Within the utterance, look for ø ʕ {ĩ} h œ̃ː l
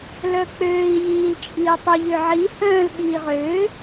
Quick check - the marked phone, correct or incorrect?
incorrect